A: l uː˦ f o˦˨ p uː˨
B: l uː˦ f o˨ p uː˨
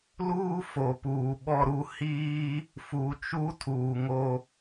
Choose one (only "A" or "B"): B